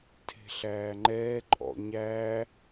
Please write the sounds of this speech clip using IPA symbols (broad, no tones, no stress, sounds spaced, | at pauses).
tʰ e̤ ɬ æː ŋ͡ǃ ɛː ǃʼ ɔ̰ ɲ æː